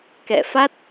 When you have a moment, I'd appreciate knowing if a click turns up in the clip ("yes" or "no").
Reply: no